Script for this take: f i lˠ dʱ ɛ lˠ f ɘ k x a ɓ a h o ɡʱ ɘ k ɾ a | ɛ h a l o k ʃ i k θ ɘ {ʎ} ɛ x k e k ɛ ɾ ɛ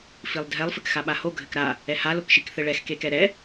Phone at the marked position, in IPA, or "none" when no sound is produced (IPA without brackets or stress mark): ɭ